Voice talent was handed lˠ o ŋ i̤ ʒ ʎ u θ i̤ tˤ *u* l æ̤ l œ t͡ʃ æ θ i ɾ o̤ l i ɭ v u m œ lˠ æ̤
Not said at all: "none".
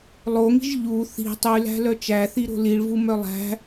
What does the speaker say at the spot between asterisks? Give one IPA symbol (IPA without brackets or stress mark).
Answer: y